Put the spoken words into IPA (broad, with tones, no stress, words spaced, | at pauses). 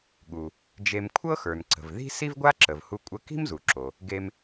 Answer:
ɠu˩ | d͡ʒe˧m kʷʰɤ˥xə˞˩n ǀə̤˩vði̤˥ si˥vɡʷa˥ǁə˩vhu˧ kʷʼə˧ ki̤˥mzu˩ǁo˩ | ɡe˧m